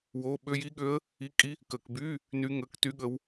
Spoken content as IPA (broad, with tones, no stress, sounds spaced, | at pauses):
w o˧˥˧ ɓ ø˧˥˧ j i˦˥ ɠ ø˦˥ ə̯ | i˧˥˧ kʼ i˦˥ | k ə˧˩˧ k b y˧˥˧ | n y˦˥ ŋ əː˧˥˧ k t y˦˥ ɠ ə˦˥ w